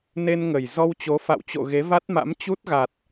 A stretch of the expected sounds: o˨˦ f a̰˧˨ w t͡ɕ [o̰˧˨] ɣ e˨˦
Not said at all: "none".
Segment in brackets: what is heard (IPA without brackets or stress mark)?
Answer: o̰˧˨